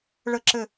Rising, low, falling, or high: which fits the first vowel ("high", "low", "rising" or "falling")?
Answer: falling